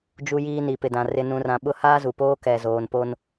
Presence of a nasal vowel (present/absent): present